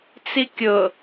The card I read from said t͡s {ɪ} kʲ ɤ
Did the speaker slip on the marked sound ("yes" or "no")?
yes